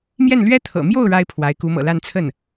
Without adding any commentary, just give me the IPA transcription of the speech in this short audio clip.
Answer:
mjɛ˥˩nlɥɛ˥t̪ʰɤ̰˨˩ mjo˥˩ʊ̯ ɻa˥ɪ̯pʰwa˧˥ɪ̯ku˧˥ mɤ̰˨˩la˥˧n t͡sʰə˥˩n

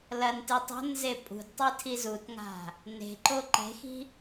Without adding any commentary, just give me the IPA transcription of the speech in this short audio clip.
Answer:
lɐntɨ tˤo̤nze pʼṳdtˤi tʰizutŋa̤ | ne̤ǃo ǃe̤xi̤

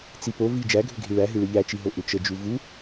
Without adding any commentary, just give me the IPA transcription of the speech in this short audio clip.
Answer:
t͡sipo vi d͡ʒæɡʱʏɡʱi ɭæɦɨ ɭɨʎæt͡ʃiɦo ʔʏt͡ʃəd͡ʒu vu

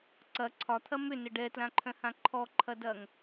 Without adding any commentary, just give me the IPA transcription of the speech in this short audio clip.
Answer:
ǀɐ ǀʰɒt̪ʰɐ mʏnə ɖɛtlãǃʰœ̃hã ǃʰɔǃʰɐdɐŋ

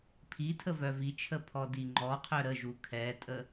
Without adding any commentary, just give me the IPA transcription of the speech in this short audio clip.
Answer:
pʰi tʰəvœvit͡ʃʰə pʰɔdiŋ͡ǃɔqʰœ ɾəʒu kʰɛtʼə

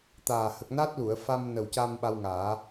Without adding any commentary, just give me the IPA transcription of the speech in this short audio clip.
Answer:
t̪aː˨˩ hə˨˩k̚na˦˥t̚lu˨˩˨ə̯fa˧m nə˨˩wca˧m ɓa˧wŋaː˨˩˦

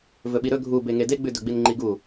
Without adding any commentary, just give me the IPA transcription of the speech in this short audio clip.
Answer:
vɵɓiɾɵ ɡʱu beŋedeɡ͡bʉ dɵɡ͡binŋ͡ǃiɡu

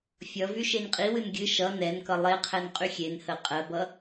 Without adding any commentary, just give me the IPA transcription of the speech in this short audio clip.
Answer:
fʲʌ vyʃenqʼiwɨn ɡʲɨ ʃʌ nɛnkʌ lˠeqʰɛn qʼyxʲenhə qʼɜbʌ

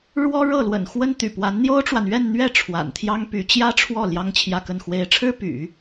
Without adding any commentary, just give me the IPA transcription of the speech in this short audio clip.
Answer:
ɻwɔ˥ɻɤ˥˩lwə̰˨˩nxwə˥n t̪y̰˨˩pwa˧˥n n̪jo˥ʊ̯ʈ͡ʂwa˨nɥɛ˥˧nn̪ɥɛ˥˩ ʈ͡ʂʰwa̰˨˩nt̪ʰjɑ˥ŋpy˧˥ t͡ɕjä˥ʈ͡ʂʰwɔ˥˩ ljɑ˥ŋt͡ɕʰjä˥˧kə˥˩nxwe˥ɪ̯ ʈ͡ʂʰɻ̩˥py̰˨˩˦

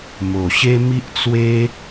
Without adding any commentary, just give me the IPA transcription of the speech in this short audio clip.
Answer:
mo˨˩ɕe˦mi˦ʔt͡swe˦

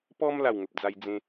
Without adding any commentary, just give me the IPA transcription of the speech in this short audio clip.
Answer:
pɔ˦m la˥˧wŋə˨p̚ d͡za˧j d͡zẽ˧

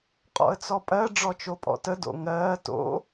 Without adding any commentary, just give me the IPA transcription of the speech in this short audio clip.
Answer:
qʼɔ̰ə̯t͡sɔpʼɜ ɖ͡ʐɔt͡ʃopʼɔ̰tə do̰ŋɜː to̰

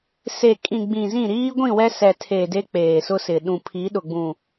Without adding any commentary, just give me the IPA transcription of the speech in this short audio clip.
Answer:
se˨kʼĩ˨ ɡ͡bĩ˨zĩ˦˨ ɾiː˦ɡʷĩ˦˨wɛ˦ sɛ˨tʰe˨ de˦k͡peː˨sʊ˦sɪ˨ ɗũ˨pʰi˨˦ɗʊ˨ɡ͡bũ˨

